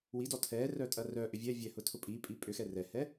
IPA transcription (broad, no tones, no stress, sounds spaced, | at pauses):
w i d ɔ tʰ ɛ r œ tʼ ɐ r œ ʔ ʏ vʲ ɛ vʲ ɛ h ʊ tʰ ʊ pʼ i pʼ i pʼ ʏ x ɛ r ɛ h ɛ